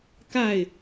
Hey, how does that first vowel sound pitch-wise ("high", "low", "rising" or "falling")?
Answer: falling